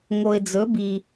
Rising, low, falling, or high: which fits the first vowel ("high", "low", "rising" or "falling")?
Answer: low